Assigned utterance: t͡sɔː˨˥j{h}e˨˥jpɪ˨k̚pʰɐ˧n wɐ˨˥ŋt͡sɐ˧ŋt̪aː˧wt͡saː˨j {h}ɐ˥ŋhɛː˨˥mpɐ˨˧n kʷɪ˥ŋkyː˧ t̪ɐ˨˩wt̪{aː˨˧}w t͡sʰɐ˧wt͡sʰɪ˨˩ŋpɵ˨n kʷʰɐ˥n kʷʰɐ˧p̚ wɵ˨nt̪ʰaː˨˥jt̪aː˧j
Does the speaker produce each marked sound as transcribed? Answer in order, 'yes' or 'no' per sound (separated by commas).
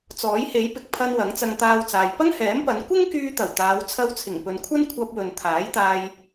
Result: yes, no, yes